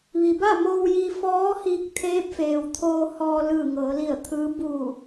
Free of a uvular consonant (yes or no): yes